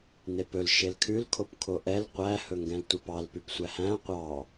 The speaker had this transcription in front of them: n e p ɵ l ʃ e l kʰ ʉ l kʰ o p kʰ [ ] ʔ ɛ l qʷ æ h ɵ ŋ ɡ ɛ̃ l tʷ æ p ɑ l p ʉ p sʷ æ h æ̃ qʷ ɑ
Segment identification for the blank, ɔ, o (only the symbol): o